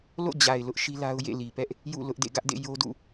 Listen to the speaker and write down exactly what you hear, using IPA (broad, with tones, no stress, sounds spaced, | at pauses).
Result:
l o̰˦˨ d͡ʑ a˨ ɪ̯ l ʊ˦ ʔ ʃ i˦ l a˦ ʊ̯ j ḛ˦˨ l i˨ p ɛ˦ ʔ | j ṵ˦˨ l ʊ˦ ʔ d ḛ˦˨ ɡ ä˦ ʔ d ḛ˦˨ j o˦ d ṵ˦˨